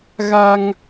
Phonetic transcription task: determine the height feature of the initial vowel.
low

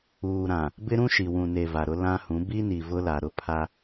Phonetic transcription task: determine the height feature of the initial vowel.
high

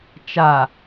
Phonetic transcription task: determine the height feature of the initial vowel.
low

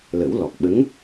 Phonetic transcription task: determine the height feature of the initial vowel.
mid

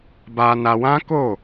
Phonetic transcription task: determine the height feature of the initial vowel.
low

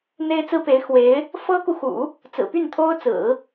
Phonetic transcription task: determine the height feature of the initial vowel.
mid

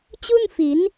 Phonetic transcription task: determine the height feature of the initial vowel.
high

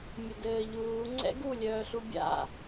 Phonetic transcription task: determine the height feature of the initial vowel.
mid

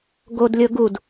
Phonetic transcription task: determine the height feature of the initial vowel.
mid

